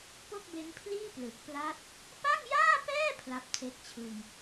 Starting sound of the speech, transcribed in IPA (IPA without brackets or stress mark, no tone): p